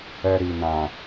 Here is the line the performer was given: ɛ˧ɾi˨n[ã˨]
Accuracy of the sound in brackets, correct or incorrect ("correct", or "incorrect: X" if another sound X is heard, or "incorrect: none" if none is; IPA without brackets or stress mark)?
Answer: correct